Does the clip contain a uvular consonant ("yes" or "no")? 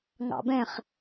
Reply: yes